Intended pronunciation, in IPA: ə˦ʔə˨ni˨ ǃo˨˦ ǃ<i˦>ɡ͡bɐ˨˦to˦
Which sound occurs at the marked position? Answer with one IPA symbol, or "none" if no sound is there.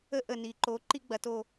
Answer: i˦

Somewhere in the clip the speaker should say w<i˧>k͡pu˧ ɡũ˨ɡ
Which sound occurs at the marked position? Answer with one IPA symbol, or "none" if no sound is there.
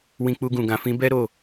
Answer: ĩ˧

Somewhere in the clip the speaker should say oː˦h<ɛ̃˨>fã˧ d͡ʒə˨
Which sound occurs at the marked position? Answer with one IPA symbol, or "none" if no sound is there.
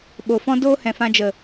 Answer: ɛ̃˨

